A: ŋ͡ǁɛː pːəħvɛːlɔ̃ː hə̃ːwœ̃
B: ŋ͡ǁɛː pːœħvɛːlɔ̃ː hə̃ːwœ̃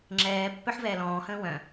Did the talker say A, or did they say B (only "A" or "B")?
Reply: B